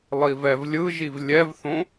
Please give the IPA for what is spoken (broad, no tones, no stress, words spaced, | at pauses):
lˠivɛvlʲɯʒiv lʲɛvθõ